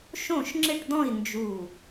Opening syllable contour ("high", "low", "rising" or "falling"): falling